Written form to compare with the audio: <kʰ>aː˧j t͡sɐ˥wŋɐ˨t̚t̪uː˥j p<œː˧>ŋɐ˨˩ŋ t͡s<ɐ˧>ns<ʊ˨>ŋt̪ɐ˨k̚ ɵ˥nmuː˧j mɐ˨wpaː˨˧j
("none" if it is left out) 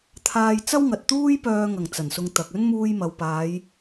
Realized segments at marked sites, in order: t̪ʰ, œː˧, ɐ˨˩, ʊ˧

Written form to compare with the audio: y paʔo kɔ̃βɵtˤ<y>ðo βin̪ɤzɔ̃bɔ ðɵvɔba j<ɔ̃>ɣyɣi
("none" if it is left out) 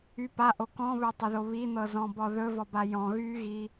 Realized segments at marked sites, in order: e, ɔ̃

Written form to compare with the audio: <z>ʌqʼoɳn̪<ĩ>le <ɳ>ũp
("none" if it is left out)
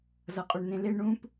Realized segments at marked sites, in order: z, ẽ, ɳ

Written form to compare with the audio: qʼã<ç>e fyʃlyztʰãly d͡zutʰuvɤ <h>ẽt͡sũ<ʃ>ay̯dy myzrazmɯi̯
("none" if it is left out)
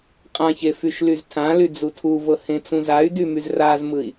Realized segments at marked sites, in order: ç, h, z

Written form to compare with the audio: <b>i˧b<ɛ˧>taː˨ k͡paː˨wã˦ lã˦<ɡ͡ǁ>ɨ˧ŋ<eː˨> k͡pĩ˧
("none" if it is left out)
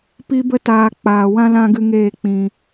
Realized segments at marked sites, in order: p, ə˧, ɡ, eː˦˨

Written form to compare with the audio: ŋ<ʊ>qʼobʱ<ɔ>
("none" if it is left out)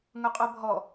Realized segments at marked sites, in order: ʊ, ɔ

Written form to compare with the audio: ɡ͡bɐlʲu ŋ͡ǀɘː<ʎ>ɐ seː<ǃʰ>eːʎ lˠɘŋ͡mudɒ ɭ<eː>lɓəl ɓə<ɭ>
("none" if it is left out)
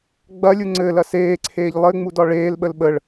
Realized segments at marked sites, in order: l, ǀʰ, eː, ɭ

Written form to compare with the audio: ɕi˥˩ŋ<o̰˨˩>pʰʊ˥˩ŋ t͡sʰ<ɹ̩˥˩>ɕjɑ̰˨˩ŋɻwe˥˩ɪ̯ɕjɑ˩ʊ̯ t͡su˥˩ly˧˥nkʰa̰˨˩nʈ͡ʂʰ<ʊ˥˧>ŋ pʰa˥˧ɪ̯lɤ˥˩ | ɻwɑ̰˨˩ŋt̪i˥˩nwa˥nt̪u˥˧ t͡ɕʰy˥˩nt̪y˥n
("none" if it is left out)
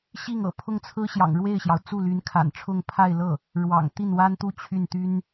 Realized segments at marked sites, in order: ɤ̰˨˩, ɹ̩˥, ʊ˥˧

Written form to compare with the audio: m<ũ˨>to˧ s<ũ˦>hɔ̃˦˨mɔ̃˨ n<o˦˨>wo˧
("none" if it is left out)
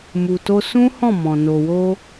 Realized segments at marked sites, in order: u˨, ũ˦, o˨

